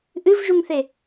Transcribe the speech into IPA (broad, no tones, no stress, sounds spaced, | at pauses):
ʔ ɨ v ʒ u ŋ θ e